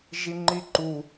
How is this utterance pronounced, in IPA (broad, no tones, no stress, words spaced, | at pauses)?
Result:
ʒiŋ͡ǃiǃu